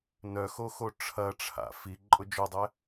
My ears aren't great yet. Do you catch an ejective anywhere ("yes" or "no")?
yes